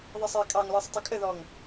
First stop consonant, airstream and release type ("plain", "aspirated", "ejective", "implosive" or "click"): ejective